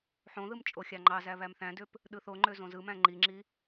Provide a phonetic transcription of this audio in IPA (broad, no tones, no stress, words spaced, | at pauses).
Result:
ħõðɯm t͡ʃʼoxʲɑŋ͡ǃɑzæ βæmθæ̃døp | ɗɯθoŋ͡ǃø zõzɯmæ̃ ŋ͡ǃiŋ͡ǁi